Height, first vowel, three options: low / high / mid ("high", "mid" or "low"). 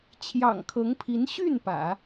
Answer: low